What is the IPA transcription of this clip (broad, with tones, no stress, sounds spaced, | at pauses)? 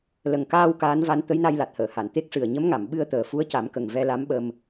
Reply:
l ə˨˩ ŋ k aː˧ w k aː˧˥ n v a˧˥ n t̪ ə˧˥ j n a˧ j l a˨˩ t̚ h əː˨˩˨ h a˨˩˨ n t̪ e˦˥ k̚ ʂ ɨ˨˩ ə̯ ɲ ə˧˥ m ŋ a˨˩˨ m ɓ ɨ˧ ə̯ t̪ əː˨˩ f u˧˥ ə̯ c a˨˩˦ m k ə˨˩ ŋ v ɛ˧ l a˧˥ m ɓ ə˧ m